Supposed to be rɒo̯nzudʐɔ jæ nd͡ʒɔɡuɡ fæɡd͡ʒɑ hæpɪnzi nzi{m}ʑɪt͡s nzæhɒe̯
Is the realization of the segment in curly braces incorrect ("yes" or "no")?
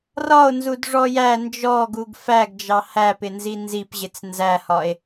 yes